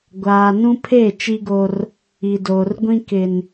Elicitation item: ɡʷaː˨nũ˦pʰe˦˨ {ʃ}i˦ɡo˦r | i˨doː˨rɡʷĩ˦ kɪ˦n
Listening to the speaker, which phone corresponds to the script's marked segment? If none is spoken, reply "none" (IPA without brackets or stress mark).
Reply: t͡ʃ